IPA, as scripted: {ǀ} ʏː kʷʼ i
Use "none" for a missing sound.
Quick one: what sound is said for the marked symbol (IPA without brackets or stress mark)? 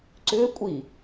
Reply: ǀ